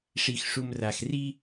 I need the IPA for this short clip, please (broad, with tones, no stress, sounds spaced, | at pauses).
ʂ i˨ x ʂ u˨ m r a˨ x r i˦